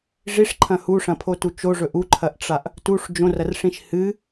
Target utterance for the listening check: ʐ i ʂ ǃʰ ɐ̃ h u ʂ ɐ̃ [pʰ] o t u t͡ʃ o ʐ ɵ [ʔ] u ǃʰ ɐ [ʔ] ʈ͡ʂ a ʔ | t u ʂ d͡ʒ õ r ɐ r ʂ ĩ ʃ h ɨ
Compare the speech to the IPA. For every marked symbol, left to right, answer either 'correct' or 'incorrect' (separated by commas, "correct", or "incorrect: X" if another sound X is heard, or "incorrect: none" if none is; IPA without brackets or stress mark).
correct, correct, correct